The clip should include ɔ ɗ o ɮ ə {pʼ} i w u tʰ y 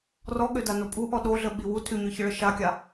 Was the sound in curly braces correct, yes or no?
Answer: no